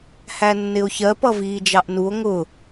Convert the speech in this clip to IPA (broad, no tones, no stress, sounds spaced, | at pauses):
h æ nː ɪ o̯ ç ɜ p ʌ v iː d͡ʒ ɑ ʔ n u o̯ ŋ ʊ